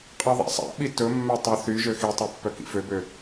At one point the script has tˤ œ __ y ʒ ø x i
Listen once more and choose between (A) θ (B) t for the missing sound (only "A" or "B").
A